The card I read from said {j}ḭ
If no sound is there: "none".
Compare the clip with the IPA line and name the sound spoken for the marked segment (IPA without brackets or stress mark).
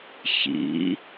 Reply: ç